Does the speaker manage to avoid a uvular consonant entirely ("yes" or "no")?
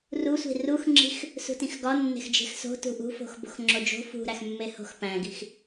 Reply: yes